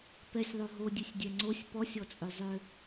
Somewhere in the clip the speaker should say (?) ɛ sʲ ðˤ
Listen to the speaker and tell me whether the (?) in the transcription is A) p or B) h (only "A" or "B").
A